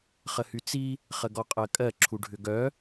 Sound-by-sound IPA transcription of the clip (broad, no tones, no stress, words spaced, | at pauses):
χəhyt͡si | χəɡɔqʼɜkʼɜ ǁʰuɖʱʏɡœ